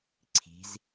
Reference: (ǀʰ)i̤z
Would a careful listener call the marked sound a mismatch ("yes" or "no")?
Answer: no